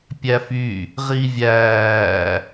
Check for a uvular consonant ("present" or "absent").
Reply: present